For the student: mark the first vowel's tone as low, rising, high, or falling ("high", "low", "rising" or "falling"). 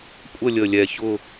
falling